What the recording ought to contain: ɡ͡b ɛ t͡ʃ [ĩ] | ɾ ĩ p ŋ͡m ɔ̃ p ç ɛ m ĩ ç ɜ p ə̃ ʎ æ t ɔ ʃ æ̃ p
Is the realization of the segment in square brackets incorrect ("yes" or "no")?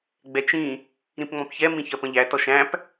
no